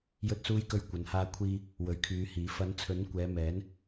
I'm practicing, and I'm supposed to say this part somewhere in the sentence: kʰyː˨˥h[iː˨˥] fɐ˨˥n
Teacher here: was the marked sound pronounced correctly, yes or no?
yes